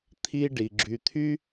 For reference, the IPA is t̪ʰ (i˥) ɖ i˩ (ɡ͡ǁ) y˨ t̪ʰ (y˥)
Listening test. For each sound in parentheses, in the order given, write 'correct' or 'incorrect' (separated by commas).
correct, correct, correct